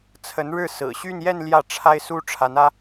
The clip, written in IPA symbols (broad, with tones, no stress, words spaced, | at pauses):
t͡sʰə˧˥nɻɻ̩˥˩ sɹ̩˨˩ɕy˥˧njɛ˥˧n ljä˥˩ʈ͡ʂʰa˥ɪ̯su˥ ʈ͡ʂʰa˧˥nä˥